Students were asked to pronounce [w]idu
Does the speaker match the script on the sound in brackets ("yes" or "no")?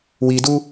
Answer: yes